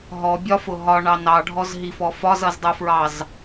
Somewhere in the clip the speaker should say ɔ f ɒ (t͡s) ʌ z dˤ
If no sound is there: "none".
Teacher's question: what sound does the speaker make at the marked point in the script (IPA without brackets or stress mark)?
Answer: z